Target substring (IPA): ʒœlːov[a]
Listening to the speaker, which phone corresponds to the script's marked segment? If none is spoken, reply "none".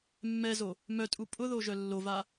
a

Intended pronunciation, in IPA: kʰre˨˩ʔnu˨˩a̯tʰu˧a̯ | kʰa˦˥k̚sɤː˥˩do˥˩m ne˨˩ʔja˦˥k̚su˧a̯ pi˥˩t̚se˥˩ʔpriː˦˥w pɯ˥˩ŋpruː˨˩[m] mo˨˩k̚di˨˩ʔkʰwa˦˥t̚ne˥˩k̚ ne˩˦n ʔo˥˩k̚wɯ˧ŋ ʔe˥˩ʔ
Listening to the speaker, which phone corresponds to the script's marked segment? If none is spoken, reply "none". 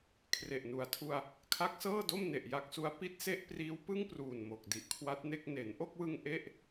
n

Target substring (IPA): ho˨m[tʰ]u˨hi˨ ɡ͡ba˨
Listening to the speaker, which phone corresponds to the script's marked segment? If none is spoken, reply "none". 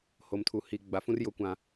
tʰ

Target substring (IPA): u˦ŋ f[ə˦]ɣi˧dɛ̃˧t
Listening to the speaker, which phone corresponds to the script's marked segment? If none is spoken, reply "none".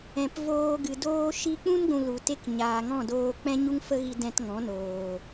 ə˦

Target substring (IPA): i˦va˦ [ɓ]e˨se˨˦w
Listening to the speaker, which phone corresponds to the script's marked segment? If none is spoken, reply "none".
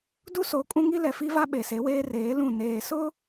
ɓ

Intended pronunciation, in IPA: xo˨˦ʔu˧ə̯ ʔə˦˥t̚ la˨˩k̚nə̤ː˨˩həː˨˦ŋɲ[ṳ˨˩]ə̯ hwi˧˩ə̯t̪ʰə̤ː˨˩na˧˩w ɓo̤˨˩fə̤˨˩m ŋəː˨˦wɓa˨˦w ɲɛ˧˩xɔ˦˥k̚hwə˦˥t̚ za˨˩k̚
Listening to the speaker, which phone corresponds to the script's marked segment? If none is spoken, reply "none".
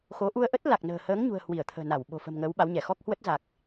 ṳ˨˩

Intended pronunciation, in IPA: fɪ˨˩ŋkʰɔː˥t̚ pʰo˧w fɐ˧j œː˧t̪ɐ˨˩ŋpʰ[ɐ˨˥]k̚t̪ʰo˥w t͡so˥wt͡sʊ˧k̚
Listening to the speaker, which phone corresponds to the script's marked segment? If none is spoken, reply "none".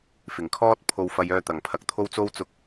ɐ˨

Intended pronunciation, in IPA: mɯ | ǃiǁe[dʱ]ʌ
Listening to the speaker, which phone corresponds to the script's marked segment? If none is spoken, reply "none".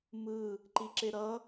ɾ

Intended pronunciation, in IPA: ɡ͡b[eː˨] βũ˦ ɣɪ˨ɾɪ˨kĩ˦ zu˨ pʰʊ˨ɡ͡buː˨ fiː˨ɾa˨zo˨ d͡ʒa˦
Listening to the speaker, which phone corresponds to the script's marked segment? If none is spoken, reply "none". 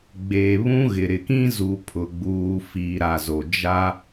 eː˨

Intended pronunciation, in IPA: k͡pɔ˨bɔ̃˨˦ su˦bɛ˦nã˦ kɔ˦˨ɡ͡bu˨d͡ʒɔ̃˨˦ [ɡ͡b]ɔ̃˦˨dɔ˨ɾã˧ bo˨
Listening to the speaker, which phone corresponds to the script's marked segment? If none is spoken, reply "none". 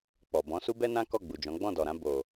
ɡ͡b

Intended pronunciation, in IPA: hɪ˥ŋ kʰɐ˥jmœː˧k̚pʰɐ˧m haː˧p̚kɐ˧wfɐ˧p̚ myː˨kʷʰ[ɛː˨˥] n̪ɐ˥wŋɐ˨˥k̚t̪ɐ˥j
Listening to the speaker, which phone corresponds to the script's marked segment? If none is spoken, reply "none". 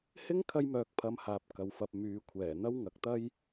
ɛː˨˩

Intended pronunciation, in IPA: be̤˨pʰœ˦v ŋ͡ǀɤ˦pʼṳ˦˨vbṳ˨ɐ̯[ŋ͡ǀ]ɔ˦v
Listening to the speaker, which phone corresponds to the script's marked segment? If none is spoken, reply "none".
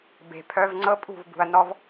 n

